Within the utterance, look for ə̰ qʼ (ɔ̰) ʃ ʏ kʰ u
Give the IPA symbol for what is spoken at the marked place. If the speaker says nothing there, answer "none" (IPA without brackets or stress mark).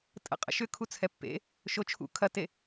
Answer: ə̰